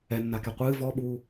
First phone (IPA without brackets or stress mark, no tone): ɛ